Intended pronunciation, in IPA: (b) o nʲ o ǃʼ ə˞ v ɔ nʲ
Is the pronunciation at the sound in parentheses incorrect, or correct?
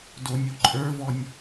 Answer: incorrect